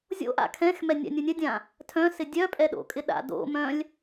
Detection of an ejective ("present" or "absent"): present